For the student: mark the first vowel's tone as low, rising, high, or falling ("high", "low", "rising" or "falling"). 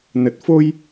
low